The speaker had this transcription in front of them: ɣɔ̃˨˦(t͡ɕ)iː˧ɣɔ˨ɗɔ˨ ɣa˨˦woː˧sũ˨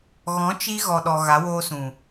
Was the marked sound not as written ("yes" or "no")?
yes